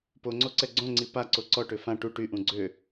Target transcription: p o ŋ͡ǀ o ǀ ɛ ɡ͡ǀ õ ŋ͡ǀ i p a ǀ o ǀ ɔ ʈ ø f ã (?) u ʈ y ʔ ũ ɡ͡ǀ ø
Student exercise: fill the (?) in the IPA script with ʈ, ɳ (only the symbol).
ʈ